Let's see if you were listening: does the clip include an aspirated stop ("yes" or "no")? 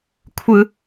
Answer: yes